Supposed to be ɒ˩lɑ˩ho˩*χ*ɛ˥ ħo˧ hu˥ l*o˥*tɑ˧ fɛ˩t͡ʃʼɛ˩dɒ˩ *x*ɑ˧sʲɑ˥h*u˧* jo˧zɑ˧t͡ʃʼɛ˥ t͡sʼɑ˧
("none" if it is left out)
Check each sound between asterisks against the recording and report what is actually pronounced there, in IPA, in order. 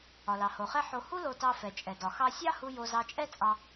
χ, o˧, x, u˧

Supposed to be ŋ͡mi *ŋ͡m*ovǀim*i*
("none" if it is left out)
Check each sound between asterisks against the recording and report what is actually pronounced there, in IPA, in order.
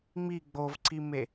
ɡ͡b, e

